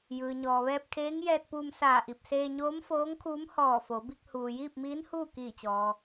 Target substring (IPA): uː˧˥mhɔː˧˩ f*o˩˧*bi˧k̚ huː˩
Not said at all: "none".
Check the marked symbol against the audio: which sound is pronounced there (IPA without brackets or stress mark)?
o˩˧